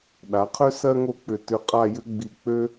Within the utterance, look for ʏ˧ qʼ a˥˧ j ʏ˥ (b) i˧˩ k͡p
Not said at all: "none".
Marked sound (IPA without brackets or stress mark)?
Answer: ɡ͡b